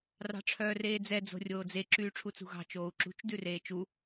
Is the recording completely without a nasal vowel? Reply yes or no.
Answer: yes